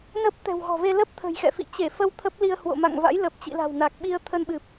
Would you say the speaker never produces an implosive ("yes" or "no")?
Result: no